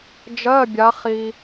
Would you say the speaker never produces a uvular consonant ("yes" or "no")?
no